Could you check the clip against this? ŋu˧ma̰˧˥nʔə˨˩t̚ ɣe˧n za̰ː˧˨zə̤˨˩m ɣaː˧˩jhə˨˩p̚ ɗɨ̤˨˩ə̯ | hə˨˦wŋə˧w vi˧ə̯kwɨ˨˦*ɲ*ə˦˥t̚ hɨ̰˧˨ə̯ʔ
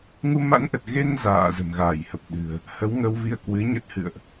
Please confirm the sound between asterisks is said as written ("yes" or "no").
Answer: yes